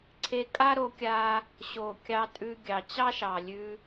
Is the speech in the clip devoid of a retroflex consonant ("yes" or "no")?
yes